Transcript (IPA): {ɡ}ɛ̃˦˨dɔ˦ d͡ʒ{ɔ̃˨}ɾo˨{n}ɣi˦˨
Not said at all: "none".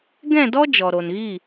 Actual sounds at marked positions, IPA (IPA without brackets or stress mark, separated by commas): ɡ, ɔ˨, n